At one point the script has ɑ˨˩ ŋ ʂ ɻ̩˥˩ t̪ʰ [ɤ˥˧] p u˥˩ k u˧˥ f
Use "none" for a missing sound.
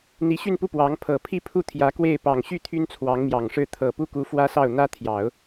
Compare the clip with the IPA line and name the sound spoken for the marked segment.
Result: ɤ˨˩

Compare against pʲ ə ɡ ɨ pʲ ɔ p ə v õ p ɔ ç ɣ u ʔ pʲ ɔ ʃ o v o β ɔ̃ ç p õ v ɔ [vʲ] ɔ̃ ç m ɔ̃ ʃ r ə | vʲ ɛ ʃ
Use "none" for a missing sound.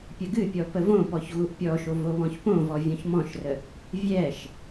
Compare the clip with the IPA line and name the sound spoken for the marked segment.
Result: vʲ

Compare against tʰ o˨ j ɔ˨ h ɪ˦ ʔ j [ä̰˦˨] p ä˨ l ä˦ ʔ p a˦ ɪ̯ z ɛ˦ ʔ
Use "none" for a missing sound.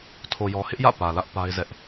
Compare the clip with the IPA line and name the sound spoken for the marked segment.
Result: ä̰˦˨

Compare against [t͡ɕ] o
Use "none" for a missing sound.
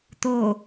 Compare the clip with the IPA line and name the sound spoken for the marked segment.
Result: t̪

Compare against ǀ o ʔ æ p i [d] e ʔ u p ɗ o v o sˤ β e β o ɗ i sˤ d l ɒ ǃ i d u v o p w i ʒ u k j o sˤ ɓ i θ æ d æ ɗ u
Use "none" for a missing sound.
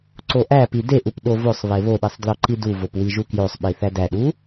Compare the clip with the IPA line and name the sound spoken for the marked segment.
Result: d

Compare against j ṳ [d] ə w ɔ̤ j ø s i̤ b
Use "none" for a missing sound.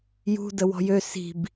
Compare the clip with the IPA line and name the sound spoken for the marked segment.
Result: d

